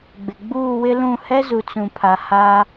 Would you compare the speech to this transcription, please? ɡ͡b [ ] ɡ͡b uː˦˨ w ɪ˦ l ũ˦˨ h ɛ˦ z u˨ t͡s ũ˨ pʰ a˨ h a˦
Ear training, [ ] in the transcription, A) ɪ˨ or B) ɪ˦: A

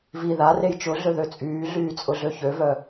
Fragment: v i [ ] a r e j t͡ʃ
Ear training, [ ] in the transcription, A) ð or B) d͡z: A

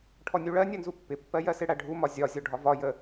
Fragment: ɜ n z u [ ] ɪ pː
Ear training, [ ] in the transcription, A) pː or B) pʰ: A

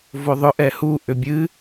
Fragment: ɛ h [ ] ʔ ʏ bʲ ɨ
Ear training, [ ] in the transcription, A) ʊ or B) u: B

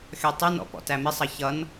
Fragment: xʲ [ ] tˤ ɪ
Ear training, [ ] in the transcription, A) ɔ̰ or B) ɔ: B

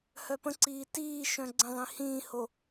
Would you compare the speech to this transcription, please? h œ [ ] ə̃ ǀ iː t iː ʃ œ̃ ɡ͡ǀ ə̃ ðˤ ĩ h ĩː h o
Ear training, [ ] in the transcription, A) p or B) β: A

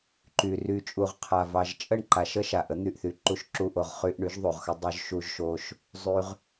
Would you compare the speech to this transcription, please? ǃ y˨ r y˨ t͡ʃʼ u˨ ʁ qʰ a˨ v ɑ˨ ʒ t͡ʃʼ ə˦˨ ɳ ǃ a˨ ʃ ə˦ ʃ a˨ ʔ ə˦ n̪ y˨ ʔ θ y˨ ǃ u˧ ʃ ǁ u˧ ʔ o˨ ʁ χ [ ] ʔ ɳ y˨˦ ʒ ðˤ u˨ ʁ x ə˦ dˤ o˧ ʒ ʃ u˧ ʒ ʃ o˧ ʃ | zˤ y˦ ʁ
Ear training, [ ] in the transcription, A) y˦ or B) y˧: B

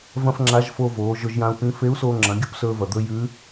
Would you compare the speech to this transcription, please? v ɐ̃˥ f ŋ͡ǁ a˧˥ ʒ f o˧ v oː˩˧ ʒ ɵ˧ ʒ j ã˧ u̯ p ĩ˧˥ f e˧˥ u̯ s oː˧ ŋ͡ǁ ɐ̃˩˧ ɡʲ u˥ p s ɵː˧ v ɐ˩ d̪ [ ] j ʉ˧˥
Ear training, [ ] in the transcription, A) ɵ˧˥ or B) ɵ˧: B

